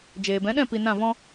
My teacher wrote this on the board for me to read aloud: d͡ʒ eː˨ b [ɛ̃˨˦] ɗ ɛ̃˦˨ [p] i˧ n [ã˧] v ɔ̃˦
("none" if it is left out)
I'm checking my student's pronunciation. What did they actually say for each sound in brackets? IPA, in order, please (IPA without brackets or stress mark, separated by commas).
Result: ɛ̃˨˦, p, ã˦˨